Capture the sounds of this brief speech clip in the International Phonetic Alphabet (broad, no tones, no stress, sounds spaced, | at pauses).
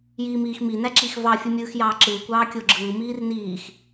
j iː m iː x m i n æ ǁ i x v ɑ fʲ ɯ mʲ ɯː x j ɑː ǁ ɯː kʷ ɑː kʲ o ɡ͡ǁ ɯː m iː r n iː x